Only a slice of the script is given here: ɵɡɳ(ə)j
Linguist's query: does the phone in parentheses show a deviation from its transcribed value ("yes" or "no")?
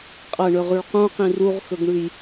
yes